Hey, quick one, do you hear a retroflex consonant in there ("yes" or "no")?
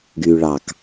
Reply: yes